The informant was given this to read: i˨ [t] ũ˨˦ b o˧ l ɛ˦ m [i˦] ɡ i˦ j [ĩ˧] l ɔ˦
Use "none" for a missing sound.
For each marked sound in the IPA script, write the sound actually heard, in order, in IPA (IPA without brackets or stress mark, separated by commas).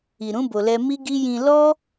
ɾ, i˦, ĩ˧